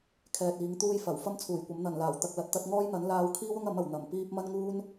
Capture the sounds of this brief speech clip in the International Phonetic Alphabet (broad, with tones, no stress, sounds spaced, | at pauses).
kʰ ɛː˧ t̚ iː˨˥ ŋ t̪ uː˥ j f ɐ˨˩ w f ɐ˥ m t͡sʰ uː˨˩ j kʷ ɐ˨˥ m n̪ ɐ˨˩ n l aː˨˩ w t̪ ɐ˨ k̚ l ɐ˨ t̚ t̪ ɐ˧ t̚ ŋ ɔː˥ j n̪ ɐ˨˥ n l aː˧ w kʰ iː˥ w ʊ˥ ŋ ɐ˨˥ m ɐ˨˩ w n̪ ɐ˨˩ m p iː˧ p̚ m ɐ˥ n ŋ uː˥ n